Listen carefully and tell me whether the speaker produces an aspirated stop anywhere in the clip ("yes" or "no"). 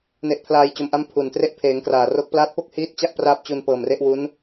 yes